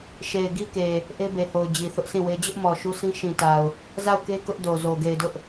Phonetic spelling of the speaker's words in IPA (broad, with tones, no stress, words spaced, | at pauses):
ʃe˨ɪ̯ɡi˦ke˨ | ʔe˦be˨ho˨ʊ̯ d͡ʑi˨θʊ˦ʔsĩ˦˨we˦ d͡ʑʊ˦ʔmɔ˨ ʃu˦sĩ˦ ʃĩ˨ta˨ʊ̯ | za˦˨ʊ̯ke˦ kʊ˦ʔdo˨zo˨ ɡe˨ɪ̯dʊ˦ʔ